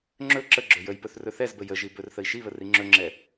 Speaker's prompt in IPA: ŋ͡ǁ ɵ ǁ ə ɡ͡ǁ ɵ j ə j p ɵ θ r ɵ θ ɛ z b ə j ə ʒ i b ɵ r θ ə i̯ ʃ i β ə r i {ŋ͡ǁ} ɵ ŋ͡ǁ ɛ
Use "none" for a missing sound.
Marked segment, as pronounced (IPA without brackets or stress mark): ŋ͡ǁ